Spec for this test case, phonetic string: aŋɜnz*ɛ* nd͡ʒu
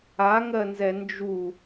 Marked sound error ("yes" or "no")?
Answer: no